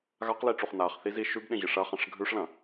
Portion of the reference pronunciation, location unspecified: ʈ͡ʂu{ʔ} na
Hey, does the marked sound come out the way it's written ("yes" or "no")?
no